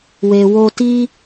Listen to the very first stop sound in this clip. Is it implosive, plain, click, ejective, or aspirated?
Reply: plain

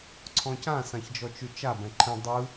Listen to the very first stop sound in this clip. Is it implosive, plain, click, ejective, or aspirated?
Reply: click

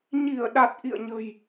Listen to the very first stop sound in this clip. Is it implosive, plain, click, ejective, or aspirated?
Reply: implosive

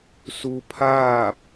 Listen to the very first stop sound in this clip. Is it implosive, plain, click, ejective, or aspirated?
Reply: aspirated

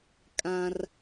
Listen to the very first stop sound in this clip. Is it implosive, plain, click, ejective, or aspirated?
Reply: ejective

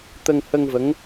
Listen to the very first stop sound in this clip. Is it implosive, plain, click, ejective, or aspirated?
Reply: plain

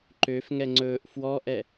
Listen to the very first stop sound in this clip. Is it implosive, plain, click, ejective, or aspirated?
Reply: click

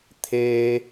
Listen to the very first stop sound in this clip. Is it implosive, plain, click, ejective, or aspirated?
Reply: aspirated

